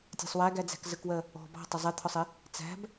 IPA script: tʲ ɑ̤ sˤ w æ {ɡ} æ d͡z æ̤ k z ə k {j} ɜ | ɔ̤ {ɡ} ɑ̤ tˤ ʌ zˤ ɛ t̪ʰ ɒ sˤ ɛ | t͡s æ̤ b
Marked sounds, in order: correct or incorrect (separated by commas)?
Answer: correct, incorrect, incorrect